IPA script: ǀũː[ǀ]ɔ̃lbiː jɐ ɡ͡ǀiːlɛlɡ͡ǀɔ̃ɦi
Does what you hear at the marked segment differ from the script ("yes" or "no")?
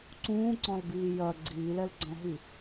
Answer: no